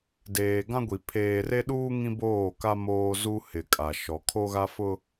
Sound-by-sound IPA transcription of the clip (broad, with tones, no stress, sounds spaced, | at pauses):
d eː˨ ɡ ã˦ ɡʷ i˨ pʰ eː˨ r e˦ ɗ uː˦ ŋ ĩ˦ b oː˦˨ k a˦ m oː˦ z u˦ h ɪ˨ kʼ a˨ ʃ ɔ˨ kʰ o˦ ɣ a˦ f ʊ˦